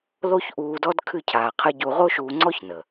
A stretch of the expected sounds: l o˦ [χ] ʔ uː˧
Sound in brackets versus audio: incorrect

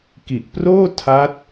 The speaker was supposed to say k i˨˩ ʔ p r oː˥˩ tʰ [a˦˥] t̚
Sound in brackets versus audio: correct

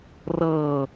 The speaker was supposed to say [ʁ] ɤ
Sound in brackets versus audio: incorrect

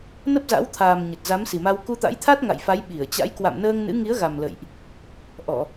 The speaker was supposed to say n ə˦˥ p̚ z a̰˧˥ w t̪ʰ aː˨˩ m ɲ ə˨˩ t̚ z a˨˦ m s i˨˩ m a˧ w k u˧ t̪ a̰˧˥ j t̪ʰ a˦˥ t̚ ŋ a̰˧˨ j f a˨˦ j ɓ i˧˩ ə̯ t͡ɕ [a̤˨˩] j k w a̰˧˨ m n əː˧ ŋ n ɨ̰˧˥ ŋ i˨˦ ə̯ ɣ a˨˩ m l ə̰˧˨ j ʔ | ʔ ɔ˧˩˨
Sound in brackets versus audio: incorrect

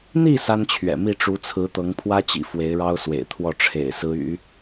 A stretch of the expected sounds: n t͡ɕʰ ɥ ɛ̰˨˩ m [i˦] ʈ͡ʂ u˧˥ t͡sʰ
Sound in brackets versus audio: incorrect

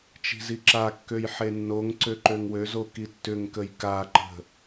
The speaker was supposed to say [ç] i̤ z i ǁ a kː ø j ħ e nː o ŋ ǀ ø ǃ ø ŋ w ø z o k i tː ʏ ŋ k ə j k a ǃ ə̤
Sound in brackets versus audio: incorrect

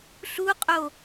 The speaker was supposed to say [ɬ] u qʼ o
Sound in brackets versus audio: correct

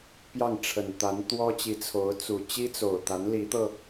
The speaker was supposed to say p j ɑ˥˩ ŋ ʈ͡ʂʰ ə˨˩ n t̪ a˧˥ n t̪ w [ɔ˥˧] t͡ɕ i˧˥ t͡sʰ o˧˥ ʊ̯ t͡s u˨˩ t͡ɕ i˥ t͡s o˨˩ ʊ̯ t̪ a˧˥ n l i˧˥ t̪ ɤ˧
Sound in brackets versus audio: incorrect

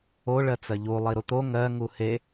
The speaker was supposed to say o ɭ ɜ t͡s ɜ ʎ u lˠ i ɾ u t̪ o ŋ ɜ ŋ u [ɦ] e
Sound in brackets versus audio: incorrect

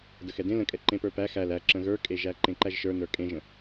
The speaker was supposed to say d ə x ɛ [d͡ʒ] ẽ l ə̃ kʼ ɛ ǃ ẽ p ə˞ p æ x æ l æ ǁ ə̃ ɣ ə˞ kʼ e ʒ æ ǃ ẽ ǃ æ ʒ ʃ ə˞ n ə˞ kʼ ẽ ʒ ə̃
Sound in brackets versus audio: incorrect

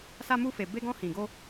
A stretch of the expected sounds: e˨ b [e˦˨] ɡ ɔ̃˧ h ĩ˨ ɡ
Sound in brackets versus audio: incorrect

